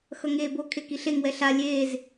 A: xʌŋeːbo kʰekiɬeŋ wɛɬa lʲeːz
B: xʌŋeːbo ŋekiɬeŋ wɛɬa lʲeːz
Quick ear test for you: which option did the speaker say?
A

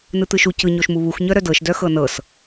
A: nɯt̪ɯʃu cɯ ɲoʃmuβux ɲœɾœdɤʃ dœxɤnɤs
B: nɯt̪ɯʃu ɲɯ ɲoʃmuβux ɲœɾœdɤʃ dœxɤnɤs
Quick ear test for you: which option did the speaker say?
A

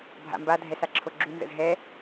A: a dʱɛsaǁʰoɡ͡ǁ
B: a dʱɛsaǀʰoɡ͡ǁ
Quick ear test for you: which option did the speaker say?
A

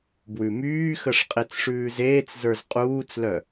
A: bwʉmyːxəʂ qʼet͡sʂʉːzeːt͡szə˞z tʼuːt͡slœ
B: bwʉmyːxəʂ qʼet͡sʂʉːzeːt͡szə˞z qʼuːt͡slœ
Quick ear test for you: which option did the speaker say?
B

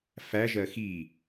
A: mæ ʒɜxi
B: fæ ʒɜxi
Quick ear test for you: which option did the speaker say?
B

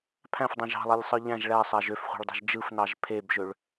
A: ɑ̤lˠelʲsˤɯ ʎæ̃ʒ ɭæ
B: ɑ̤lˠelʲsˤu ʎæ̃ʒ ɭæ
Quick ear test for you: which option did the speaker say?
A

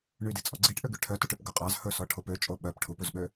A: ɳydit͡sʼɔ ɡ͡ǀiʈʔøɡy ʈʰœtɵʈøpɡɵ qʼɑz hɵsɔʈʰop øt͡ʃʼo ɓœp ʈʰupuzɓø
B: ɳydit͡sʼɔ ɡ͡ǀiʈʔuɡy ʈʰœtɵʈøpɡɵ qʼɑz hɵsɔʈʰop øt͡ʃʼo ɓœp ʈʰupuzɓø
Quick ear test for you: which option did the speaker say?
A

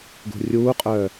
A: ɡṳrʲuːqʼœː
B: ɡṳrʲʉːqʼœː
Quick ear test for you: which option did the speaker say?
A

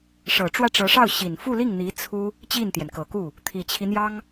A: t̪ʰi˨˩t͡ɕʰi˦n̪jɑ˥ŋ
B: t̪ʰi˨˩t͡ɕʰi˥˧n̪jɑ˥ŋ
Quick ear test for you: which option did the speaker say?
A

